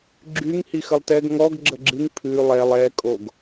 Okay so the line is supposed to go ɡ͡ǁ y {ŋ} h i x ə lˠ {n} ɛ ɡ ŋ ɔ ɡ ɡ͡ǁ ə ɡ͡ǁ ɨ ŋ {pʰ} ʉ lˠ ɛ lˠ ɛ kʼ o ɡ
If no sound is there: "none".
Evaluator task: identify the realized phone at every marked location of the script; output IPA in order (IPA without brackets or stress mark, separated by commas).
ŋ, t, pʰ